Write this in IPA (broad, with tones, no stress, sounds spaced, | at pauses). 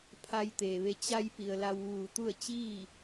pʰ a˧ j t̪ eː˩ ʋ e˧ t͡ɕ a˧ j p i˩ ə̯ l a˧ w ʋ uː˧˩ t̪ u˥˨ ə̯ t͡ɕ iː˥˨